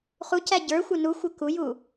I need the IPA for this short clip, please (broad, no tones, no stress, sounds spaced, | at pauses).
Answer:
χ u c æ ɟ ə˞ xʷ ɪ n u xʷ ɪ k u j u